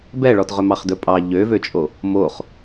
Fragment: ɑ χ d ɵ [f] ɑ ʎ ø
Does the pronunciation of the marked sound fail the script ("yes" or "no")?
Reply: yes